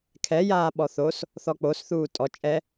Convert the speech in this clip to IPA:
kʰ ɛ j aː ɓ ɔ θ o s | θ ɔ k͡p o s θ uː tʼ ɔ t͡ʃʼ ɛ

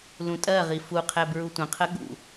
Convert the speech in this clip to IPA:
l ũ tʼ ɜ ʁ i f u qʰ ɛ b ɹ u tʷ ə̃ qʰ ə ɠ ṵ

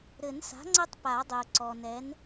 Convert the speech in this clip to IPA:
ɾ ɘ˨˩˦ n s a̤˩˥ ŋ͡ǀ ɘ˦ tˤ p a˨˩˦ dˤ ɘ˩ ʊ̯ ǀ ɔ˩ n ɛ˩˥ n

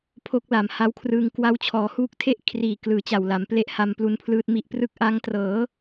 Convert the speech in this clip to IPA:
pʰ o˦˥ k̚ l a˨˩ m h a˦˥ w kʰ r ɯː˧ ŋ k w a˦˥ w t͡ɕʰ ɔː˩˦ h uː˦˥ k̚ tʰ e˥˩ ʔ kʰ r iː˨˩ k l ɯː˨˩ t͡ɕ a˨˩ w l a˩˦ m p l e˦˥ ʔ h a˧ m p l u˧ n pʰ l ɯː˦˥ t̚ m i˦˥ ʔ p r ɯ˥˩ k̚ ʔ a˦˥ ŋ t r ɤː˩˦

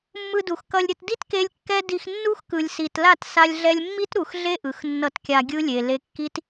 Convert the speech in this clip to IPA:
mː ɯ˧ d u˨ x k ʌ˧ lʲ ɾʲ ʌ˧ t d i˦ t k e˧ lʲ kː ɛ˦ d i˧ x nː u˦ x k ɯ˨ lʲ s i˨ t l a˦˨ t s a˧ lʲ ɮ ɛ˧ lʲ mː i˦ t ɾ u˨ x ɮ e˦ ʔ ɯ˨ x nː ʌ˧ t kʲ a˧ ɡʲ ɯ˦ lʲ e˨ l e˧ kː i˦ t

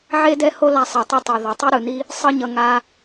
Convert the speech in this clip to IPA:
ʕ e˦ d ɛ˦ h o˦ l a˧ sˤ ɛ˨ tˤ i˧ tˤ e˨ ð ʌ˨ tˤ ɯ˦ ɾ ɯ˨ n i˦ | sˤ ɯ˦ ɲ ʌ˧ ŋ a˧

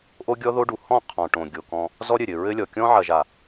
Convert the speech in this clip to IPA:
ʔ o˦ ɡʲ ɔ˦ ð o˦ ɖ u˨ h ɔ̃˦˨ qʰ ɔ̃˨ ʈ õ˨ ɡʲ o˨ k ɔ̃˦ | z ɔ˦ ɾʲ ɘ˨ ɾʲ ɘ˨ ɹ ɘ˦ lʲ ɔ˨ kʲ ɔ̃˦ ʕ ɐ˨ ʒ a˨

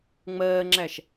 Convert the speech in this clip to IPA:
ŋ͡m ɜː ŋ͡ǁ æ ʃ

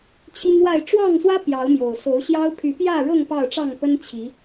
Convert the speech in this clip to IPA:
t͡ɕʰ i˦ ŋ w a˥˨ ɪ̯ ʈ͡ʂ w ɑ˥˨ ŋ s w ä˦ p j ɑ˨˦ ʊ̯ m j o˨˩ ʊ̯ s o˨˦ ʊ̯ ɕ j ɑ˦ ʊ̯ pʰ y˨˦ p j ä˥˨ ɻ ɤ˥˨ ŋ p ɑ˥˨ ʊ̯ ʈ͡ʂ ɑ˥˨ ŋ p ə˦ n t͡ɕʰ i˨˦

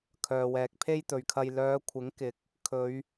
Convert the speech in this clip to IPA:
kʰ œː˨ w ɛː˨ k̚ pʰ e˥ j t̪ ɵ˨ ɥ kʰ ɐ˧ j l œː˨˧ kʷʰ ɪ˨˥ ŋ k ɪ˨˥ k̚ | kʰ ɵ˨˧ ɥ

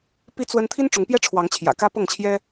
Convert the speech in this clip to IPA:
p i˦ t͡s w ə˦ n t̪ʰ i˦ n ʈ͡ʂ ʊ˨˦ ŋ p j ɛ˦ ʈ͡ʂʰ w ɑ˨˦ ŋ t͡ɕʰ j ä̰˨˩ k ä˦ p ɤ˥˨ ŋ t͡ɕʰ j ɛ˦

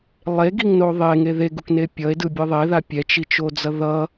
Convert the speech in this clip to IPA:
lˠ e ɡ i ŋ n o ðˤ e ŋ e ð e ɡ u k n e pʲ ʌ e̯ d ɯ bʲ ɯ ðˤ e ð a pʲ ɛ t͡ʃ i t͡ʃ o d͡z ʌ ð ʌ

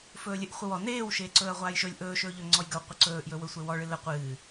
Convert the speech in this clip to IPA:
f ɵː lʲ ɨ ʔ χʷ ə w ɔ n eː w ʃ eː ǀ ɵː ɐ̯ ʁʷ aː j ʃ ɵ lʲ ʔ ɵː ʃ ɵː ʎ ɵ ŋ͡ǀ ɔ j ɡ ə w qʷ ə ǀ ɵː ʔ j ɵ w ɵ sʷ e w ɔ ɭ ɨ l ə qʷ ɨː

